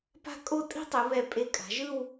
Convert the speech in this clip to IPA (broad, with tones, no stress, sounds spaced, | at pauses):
p a̤˥˧ kʼ o˥˧ tʼ i̤˥ tˤ ɯ˩˧ β ɛ˧˩ pʼ e˧ kʼ a̤˩˧ ʒ ɯ˥˧ w